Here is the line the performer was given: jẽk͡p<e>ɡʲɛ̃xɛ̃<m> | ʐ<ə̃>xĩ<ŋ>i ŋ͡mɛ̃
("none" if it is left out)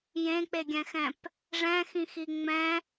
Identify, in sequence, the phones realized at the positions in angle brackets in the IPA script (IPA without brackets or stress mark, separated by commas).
e, p, ɛ̃, x